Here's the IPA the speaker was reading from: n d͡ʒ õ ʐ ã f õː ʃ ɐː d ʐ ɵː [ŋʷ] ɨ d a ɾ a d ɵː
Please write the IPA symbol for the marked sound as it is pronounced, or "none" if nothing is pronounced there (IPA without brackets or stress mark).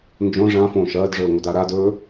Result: ŋʷ